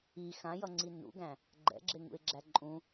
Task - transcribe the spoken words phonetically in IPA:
i x ã j ʌ ŋ͡ǀ i n ṵ ɡ æ̃ | ɡ͡ǃ ɛ̰ ɡ͡ǁ e ŋ ṵ ɪ̯ ɡ͡ǁ æ ǃʼ ũ

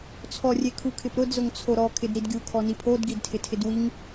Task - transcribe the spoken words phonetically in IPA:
t͡sʰ ɔ rʲ e kʰ u kʰ ɪ p ɾ ʊ d z ʊ ŋ t͡sʰ o ɾ ɔ kʰ ɪ d ɾ i d ɡʲ u kʰ ɔ n i pʰ o d ɡ i d tʰ ɪ tʰ ɪ d w i ŋ

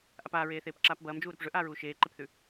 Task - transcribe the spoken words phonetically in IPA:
ʔ a p aː ɹ eː θ eː p ǁ aː p b ɐː m d͡ʒ uː ɾ ɵ p ʐ ɵ ʔ aː ɹ uː ʃ eː ǃ e p θ ʉ

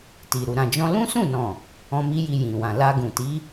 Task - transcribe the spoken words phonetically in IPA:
t i˨ ɾ u˨ ɾ ã˨ d͡ʒ ɔ̃˧ l ũ˦ s ũ˦˨ n ɔ̃˨ | ɔ̃˦ m i˦ j i˧ j ĩ˨ w ã˨ l a˧ ɡ ũ˨ t i˨˦

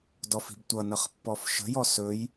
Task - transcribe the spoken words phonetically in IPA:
d ɔ f i̤ b tʷ ʌ n ʌ χ pː ɔ f ʃ ə̤ j ɔ s ɵ j

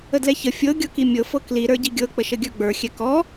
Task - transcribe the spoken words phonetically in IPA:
ə d l ɛ ç ə fʲ ɤ ɡʲ ɤ k i mʲ ɤ f ɤ k l i ɾ ə˞ ɟ i ɡʲ ɤ k͡p ə ʃ ə ɡʲ ə˞ ɡ͡b ə˞ xʲ ɛ k ɔ

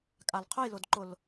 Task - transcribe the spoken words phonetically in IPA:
kʼ a l qʰ ʊ j l ʊ d ǃ ʊ l

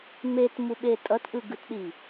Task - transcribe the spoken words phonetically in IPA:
m e t m u ɓ e tʼ ʌ t ʔ ɯ ɡ ɯ t ɗ i

